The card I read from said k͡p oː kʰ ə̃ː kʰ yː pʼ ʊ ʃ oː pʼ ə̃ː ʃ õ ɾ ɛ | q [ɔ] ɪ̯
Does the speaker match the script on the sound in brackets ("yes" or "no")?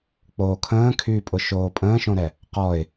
yes